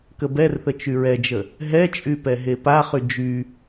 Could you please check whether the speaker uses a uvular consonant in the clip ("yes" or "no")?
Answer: yes